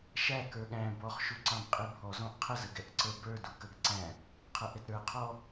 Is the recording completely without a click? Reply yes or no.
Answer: no